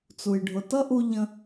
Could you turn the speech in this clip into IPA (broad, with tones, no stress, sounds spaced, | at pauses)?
t͡s u˩ j ɖʱ ʊ˩ t ʌ˥ ʔ u˧ ʎ ə̃˧